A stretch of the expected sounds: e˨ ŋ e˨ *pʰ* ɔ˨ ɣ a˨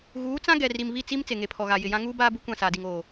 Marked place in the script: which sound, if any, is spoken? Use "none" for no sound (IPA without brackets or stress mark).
pʰ